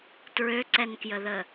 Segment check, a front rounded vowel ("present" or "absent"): present